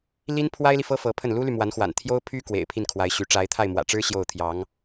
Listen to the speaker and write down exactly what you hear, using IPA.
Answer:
l i˥ n pʰ w a˥ ɪ̯ l i˨ f ɤ˥ f ɤ˧˥ pʰ ə˥˩ n l u˥ l y˨ m w a˧˥ n x w a̰˨˩ n t̪ʰ j o˥ ʊ̯ pʰ y˥ k w ḛ˨˩ ɪ̯ pʰ i˥˩ n kʰ w a˧˥ ɪ̯ ɕ y˧˥ ʈ͡ʂ a˧˥ ɪ̯ t̪ʰ a˥˩ ɪ̯ m w ä̰˨˩ ʈ͡ʂ ɻ̩˥ ɕ j o˥˩ ʊ̯ t̪ʰ j ɑ˧˥ ŋ

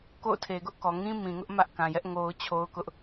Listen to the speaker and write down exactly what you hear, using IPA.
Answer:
k o̰˦˨ ʊ̯ tʰ e˨ ɡ ʊ˦ ʔ k ɔ˨ ŋ ĩ˦ m ĩ˨ ŋ ʊ˦ ʔ m ä˦ ʔ k ã˨ j ɛ˦ ʔ ŋ o˦ ʊ̯ t͡ɕʰ o˦ ʊ̯ k ʊ˦ ʔ

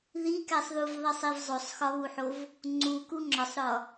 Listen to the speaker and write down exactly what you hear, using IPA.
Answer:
ð i k æ sˤ ð u v ðˤ i sˤ i v zˤ o sˤ x ɒ β u ħ o v | ŋ͡ǀ u k u ŋ͡ǁ ɒ sˤ ɾ ɒ

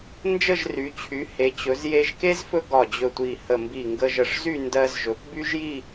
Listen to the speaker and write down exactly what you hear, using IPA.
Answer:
n d͡ʒ ə˥˧ ʒ r y˩˧ t͡ɕʰ y˩˧ h e˩˧ t͡ɕ ɵ˩˧ z j e˧ ʒ k e˥ z f ɵ˥ ɡ ɒ˧˩ d͡ʑ ɵ˧˩ tʷ i˧˩ h ə˧˩ m b i˧˩ ŋ ɡ ə˧ ʒ ə˧˩ ʂ z y˥˧ n d ɜ˧ z ʒ ɵ˩˧ p b y˥ ʒ j i˥˧

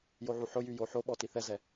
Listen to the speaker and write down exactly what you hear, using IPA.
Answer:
j o ʕ u ħ ʊ j y j o ħ o ɓ ɔ t i θ ɛ z ɛ

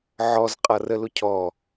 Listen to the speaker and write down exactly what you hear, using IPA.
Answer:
ʕ ɔ z qʼ ʌ r ə l ʊ cʰ ɔ

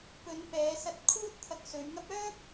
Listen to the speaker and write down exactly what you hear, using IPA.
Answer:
p ɵ˨˧ n p ɛː˨˧ s ɐ˧ t̚ kʰ uː˥ t̚ t̪ʰ ɐ˧ k̚ s ɵ˨˧ ɥ ŋ ɐ˥ p̚ œː˥ p̚

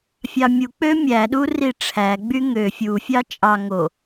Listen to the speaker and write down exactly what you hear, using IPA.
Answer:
fʲ ɑ mʲ u k͡p ø mʲ æ ɗ u r i ʈ͡ʂʰ æ ɡ͡b y ŋ ø fʲ u fʲ ɑ t͡ʃʼ ɑ ŋ o

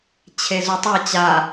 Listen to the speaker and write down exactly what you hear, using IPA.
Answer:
t͡ɕʰ e z u tˤ a t͡ɕ a

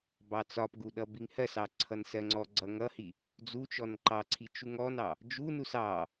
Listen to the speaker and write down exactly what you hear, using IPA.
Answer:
b ɑ t͡s ɒ p ɡ u ɗ ʌ b i ŋ h ɜ s ɑ ǀʰ ʌ n s ɜ ŋ͡ǀ ɔ ɡ͡ǀ ʌ ŋ ʌ h i | d͡z u t͡ʃ ɔ n ǃ ɑ ǀʰ i t͡ʃ u ŋ ɔ n ɑ | d͡ʒ u n u s ɑ

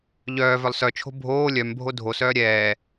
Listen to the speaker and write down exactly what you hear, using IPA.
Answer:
ʎ œː v œ lˠ s œ t͡ʃʰ o̤ bʱ oː lʲ œ m bʱ o dʱ o s œː ɾʲ ɛː

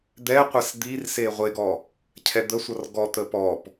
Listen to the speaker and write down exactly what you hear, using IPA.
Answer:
d̪ ɛ qʷ ɛ s d̪ i r s e ʁʷ e ɡ ɔ | cʰ ɛ d̪ ə sʷ ʌ r ɡ ɔ t̪ ə p ɔ p

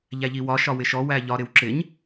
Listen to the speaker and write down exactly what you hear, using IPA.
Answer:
ʎ æ ʎ i w ɒ ʃ ɒ w ɪ ʃ ɔ w æ ʎ ɒ ɾ ɪ w ǁ ɪ ɲ

